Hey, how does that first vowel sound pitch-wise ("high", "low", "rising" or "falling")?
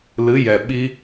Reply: rising